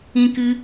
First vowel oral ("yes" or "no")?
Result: no